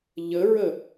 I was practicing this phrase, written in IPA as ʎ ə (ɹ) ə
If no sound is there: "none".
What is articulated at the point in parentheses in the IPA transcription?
ɹ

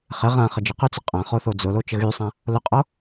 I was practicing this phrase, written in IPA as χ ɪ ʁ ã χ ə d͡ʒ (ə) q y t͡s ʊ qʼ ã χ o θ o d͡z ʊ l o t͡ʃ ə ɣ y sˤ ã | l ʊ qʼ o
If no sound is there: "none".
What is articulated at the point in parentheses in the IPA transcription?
ə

